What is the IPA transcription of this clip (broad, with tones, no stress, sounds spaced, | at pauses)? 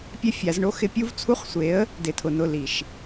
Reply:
pʲ ɛ˦ fʲ a˨˦ z ɳ o˦ x ɪ˦ pʲ u˦ v t͡sʰ u˦ χ sʷ e˨˦ ə̯ | d ɪ˨ tʰ ʊ˨ n ʊ˦˨ l i˨ ʃ